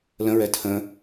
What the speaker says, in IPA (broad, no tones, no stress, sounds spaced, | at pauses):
l ə̃ ɹ ɛ tʰ ə̃